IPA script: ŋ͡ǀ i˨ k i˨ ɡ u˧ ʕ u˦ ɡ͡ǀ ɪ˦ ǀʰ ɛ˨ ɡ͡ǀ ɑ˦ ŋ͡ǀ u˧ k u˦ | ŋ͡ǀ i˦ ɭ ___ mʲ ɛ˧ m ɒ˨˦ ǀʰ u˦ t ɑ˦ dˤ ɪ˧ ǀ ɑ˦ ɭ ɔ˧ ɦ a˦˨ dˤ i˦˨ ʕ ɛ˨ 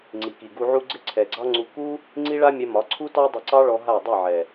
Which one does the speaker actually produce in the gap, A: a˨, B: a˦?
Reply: B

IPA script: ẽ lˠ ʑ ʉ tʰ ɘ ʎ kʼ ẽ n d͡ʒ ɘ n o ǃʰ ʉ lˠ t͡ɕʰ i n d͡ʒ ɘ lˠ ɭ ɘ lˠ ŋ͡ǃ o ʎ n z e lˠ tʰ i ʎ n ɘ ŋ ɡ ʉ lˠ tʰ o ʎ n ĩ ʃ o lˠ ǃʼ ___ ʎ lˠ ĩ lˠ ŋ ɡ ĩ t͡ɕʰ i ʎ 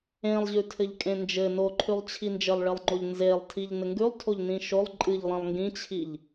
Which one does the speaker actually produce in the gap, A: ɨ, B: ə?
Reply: A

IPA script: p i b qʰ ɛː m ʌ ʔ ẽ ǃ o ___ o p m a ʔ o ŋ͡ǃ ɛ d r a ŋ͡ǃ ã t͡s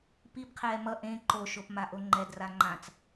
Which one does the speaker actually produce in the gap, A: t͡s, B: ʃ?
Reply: B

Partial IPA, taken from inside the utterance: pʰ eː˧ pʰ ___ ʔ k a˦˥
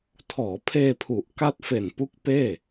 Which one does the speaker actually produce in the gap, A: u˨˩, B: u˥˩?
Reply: A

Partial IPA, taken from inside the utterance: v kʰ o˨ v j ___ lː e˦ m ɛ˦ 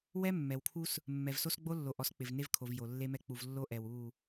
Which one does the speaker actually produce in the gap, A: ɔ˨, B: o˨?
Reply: B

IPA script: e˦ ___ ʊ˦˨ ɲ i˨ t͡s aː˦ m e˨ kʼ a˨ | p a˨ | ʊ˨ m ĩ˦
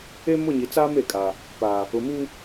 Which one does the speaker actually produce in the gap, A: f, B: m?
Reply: B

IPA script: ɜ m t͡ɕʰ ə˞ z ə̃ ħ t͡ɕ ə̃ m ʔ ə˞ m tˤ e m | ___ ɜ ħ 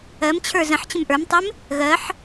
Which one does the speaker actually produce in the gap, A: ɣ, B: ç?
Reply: A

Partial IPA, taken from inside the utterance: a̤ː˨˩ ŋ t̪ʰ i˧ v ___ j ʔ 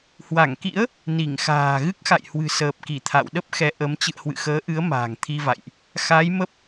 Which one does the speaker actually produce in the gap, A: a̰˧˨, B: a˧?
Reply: A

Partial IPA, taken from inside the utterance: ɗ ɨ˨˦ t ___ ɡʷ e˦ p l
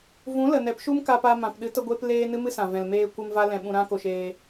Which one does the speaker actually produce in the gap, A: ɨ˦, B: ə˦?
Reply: B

